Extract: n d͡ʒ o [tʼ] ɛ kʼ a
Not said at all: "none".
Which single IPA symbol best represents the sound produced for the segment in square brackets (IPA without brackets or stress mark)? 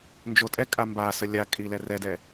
tʼ